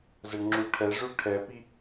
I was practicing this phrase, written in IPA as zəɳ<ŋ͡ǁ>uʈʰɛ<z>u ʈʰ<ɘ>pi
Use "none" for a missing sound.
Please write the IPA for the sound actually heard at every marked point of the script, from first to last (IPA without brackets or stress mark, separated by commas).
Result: ŋ͡ǁ, ʐ, ɛ